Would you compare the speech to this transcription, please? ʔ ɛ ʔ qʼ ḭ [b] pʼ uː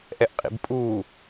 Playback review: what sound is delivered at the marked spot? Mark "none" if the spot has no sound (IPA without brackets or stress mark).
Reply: b